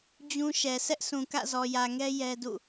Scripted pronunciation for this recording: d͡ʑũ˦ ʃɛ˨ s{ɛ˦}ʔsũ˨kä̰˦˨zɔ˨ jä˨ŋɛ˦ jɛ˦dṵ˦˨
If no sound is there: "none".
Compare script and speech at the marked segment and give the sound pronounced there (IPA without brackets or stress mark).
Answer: ɛ˦